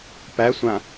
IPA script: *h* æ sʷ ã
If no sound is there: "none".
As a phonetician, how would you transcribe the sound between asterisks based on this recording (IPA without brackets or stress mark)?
p